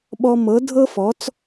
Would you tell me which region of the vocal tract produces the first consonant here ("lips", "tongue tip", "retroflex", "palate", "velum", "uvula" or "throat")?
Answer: lips